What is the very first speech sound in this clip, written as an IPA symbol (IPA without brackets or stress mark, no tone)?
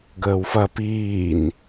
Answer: ɡ